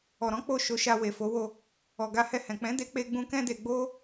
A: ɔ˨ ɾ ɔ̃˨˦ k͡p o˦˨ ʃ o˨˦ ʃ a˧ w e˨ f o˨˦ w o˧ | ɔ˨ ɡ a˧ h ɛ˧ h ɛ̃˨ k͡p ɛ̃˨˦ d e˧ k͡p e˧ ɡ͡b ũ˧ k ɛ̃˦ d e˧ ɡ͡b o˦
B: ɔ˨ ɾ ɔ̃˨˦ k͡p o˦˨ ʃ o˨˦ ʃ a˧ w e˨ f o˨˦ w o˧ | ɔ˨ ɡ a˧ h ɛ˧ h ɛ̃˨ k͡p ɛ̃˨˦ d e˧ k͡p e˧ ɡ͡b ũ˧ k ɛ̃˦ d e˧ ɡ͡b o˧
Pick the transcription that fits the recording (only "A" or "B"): A